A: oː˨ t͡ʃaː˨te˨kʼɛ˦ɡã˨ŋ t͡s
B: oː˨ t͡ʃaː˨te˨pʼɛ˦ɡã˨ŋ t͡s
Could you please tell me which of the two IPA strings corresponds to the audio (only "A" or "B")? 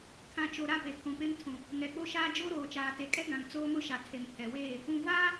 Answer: A